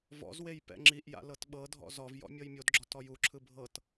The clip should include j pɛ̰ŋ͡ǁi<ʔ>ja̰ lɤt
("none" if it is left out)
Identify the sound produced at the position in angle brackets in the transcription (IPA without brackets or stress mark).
ʔ